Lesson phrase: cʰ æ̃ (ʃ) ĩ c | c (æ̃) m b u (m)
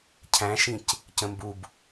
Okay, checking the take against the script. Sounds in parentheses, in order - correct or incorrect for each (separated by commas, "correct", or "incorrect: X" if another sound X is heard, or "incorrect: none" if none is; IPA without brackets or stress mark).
correct, incorrect: ə̃, incorrect: b